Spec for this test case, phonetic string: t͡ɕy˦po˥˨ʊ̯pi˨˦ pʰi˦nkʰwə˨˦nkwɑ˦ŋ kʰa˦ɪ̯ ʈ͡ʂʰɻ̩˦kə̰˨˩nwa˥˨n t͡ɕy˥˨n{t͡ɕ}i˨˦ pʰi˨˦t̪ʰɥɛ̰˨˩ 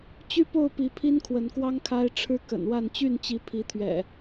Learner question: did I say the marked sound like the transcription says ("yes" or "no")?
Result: yes